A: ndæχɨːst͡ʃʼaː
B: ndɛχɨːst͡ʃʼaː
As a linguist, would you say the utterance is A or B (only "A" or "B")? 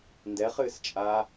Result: B